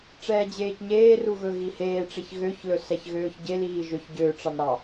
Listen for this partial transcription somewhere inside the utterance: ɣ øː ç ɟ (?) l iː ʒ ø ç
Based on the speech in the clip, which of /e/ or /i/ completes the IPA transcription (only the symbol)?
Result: e